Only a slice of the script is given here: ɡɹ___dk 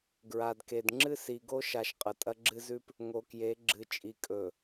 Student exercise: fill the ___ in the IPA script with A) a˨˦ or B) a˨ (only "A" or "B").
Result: B